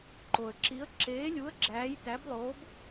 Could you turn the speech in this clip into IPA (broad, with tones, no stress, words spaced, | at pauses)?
ǃo˨ə̯ǁi˧˥ə̯ ǁeː˧˥lʲu˧˥ə̯ ɡ͡ǁæː˧˥jtæ˧˥blˠoː˧˥b